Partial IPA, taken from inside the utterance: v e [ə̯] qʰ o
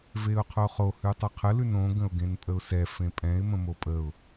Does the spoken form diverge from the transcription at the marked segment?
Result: yes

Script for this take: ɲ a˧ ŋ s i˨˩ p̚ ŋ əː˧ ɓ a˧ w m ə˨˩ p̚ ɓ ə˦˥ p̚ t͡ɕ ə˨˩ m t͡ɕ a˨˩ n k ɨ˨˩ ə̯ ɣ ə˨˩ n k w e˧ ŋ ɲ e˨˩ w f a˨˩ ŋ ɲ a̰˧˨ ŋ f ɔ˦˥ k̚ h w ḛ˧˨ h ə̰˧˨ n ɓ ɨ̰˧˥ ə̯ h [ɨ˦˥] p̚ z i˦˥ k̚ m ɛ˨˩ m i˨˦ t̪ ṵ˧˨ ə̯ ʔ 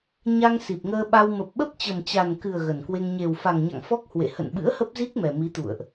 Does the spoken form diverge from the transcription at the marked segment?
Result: yes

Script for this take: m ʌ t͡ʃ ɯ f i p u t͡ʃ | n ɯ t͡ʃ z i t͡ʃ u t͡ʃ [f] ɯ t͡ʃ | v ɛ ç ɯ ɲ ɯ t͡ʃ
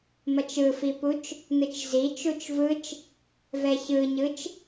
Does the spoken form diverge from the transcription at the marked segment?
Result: yes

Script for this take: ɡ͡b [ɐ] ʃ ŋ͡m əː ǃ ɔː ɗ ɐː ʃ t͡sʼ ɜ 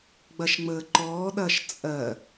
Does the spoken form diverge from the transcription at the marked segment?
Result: no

